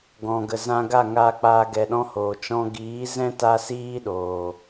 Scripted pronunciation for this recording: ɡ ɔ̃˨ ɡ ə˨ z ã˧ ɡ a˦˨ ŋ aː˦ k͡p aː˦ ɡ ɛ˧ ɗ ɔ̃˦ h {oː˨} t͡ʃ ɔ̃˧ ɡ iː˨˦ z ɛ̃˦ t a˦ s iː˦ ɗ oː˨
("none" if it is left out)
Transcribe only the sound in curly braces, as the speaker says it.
oː˨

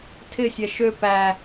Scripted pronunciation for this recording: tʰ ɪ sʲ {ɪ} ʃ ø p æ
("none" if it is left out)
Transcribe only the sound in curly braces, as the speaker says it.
ɛ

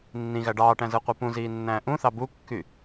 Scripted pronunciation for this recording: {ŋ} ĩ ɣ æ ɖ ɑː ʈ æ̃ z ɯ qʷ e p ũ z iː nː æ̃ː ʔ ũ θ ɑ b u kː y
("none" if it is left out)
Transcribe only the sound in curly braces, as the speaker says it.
nː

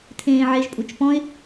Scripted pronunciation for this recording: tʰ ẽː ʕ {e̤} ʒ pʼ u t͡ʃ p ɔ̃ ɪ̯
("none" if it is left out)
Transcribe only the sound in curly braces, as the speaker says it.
e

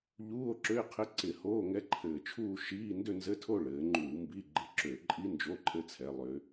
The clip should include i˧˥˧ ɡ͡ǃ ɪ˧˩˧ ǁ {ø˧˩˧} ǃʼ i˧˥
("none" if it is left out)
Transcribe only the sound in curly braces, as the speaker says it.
ø˧˩˧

